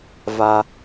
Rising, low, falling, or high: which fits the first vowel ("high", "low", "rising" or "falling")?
high